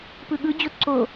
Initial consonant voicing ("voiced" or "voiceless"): voiceless